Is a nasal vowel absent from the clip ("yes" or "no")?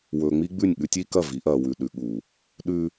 yes